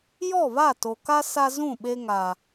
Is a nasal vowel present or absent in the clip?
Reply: present